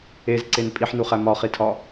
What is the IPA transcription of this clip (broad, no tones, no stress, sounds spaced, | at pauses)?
e z ǀ e n pʼ i ħ n u χ æ m ɒ χ i tʰ ɒ